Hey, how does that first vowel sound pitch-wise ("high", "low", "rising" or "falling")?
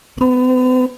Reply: high